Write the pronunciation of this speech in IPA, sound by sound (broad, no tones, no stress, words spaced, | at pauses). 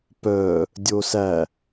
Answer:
pœ | dʲosæ